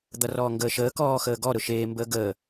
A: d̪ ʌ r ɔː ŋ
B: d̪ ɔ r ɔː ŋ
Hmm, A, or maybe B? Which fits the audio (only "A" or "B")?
A